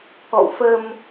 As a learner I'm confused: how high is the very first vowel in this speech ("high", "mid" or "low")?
mid